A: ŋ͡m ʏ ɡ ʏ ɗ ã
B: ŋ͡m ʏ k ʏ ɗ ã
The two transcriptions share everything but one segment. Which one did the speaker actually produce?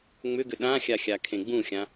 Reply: A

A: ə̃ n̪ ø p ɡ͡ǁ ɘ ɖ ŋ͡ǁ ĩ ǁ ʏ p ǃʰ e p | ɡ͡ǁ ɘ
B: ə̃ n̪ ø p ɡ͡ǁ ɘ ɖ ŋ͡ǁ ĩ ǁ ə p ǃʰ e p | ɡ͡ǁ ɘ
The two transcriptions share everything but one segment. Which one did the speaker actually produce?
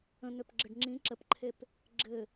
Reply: B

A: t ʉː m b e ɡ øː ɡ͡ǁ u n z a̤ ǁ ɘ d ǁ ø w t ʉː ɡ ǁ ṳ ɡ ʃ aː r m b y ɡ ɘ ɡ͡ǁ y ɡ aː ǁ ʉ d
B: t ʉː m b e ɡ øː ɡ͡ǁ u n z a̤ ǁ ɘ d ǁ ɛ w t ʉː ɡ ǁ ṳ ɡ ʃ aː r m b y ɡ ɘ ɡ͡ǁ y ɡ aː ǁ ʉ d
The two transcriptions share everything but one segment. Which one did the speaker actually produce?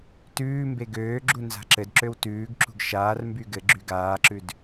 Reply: A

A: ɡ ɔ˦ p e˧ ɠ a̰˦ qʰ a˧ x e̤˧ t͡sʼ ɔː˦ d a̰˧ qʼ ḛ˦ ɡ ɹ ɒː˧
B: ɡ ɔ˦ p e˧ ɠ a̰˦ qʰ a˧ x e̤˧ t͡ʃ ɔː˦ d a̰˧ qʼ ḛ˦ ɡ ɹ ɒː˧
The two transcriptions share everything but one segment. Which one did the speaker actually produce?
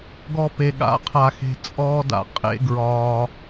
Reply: A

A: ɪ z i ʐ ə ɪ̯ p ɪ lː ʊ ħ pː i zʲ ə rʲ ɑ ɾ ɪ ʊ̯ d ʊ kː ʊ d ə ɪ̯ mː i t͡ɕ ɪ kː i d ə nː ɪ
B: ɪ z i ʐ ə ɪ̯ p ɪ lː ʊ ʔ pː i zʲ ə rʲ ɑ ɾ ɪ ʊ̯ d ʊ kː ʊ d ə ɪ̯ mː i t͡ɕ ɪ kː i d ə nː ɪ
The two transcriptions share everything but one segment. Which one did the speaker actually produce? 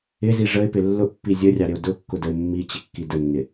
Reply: B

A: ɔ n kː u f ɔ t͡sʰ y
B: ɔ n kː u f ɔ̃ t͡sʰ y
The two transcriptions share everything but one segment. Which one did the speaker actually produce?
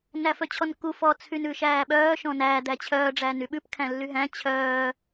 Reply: A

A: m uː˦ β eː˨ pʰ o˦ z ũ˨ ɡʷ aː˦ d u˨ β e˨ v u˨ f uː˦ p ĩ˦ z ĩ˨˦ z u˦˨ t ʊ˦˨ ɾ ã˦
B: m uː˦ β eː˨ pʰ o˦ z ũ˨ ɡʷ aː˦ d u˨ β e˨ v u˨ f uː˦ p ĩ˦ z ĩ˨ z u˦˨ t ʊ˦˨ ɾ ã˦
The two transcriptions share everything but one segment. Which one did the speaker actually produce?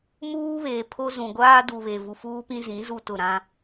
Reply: A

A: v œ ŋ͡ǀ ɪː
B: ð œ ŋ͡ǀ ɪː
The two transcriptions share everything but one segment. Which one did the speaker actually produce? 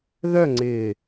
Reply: B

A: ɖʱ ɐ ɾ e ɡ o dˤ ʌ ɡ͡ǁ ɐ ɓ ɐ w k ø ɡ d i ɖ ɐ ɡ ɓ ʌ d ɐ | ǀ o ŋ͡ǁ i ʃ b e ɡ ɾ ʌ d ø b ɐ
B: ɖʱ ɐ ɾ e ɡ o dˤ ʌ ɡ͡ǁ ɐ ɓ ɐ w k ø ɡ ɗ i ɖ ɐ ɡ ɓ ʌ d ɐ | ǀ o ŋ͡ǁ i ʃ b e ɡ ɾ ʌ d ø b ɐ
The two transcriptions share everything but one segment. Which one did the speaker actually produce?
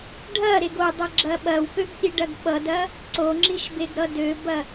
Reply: B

